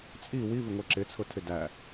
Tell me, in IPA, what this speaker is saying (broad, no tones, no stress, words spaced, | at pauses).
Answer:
t͡sʼi wivɪŋʷɛ ǁɪt͡sʰʊtʰɪ dæ